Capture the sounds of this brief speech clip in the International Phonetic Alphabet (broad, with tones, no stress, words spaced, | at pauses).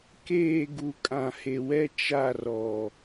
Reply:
keː˦˨ ɡu˨kʼã˨he˨wɛ˦ t͡ʃa˦˨rɔ˨